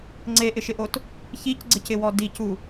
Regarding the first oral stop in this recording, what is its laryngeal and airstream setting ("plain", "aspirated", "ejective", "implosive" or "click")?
click